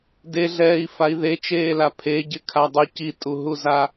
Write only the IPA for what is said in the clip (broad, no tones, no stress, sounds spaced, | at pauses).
d e ɮ ɛː i̯ f a i̯ ð e t͡ʃ eː l a pʰ e ɟ ɪ kʰ a dˤ u c i tʼ u ɦ u z a